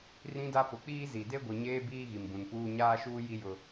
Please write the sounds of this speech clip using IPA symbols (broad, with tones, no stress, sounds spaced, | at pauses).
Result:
r ĩ˦ d a˦ p ʊ˨˦ k͡p iː˦ z i˨ d e˦ ɡʷ i˨ ɲ eː˦ b iː˦ ɣ i˨ m b ũ˨ n p uː˦ ɲ aː˦ ʃ uː˦ j i˦ j ʊ˦